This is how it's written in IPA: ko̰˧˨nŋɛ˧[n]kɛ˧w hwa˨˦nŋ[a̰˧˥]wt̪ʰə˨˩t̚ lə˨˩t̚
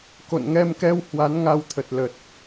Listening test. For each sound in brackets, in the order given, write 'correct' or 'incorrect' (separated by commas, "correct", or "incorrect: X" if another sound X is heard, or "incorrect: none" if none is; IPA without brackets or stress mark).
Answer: incorrect: m, incorrect: a˧